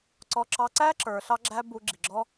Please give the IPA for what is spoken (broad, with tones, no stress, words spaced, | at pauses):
ǀɔ˧ǁɑ˧ǀæ˦ ǁə˞˧ɬɑ˦ɡ͡ǁæ˦ bu˧ɡ͡ǁi˨ɡ͡ǁɔ˦